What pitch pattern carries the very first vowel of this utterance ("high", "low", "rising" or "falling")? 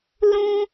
high